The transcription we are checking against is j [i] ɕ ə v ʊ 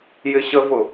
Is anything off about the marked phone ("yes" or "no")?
yes